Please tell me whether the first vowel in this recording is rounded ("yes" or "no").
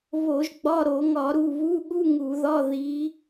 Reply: yes